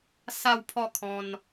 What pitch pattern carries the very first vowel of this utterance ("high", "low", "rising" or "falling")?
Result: falling